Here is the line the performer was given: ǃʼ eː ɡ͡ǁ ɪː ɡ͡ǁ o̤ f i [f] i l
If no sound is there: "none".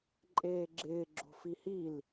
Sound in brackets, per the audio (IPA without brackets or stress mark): h